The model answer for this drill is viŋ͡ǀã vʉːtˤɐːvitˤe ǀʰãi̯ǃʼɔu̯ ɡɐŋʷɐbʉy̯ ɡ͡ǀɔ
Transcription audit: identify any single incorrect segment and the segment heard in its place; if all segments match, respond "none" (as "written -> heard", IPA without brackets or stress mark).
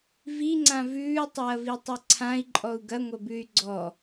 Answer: none